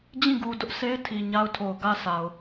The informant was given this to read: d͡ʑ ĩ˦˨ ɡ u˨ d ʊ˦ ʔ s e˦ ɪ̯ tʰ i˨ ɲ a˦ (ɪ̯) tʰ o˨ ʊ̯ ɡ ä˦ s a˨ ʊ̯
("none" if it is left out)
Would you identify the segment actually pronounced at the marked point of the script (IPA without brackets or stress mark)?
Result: ʊ̯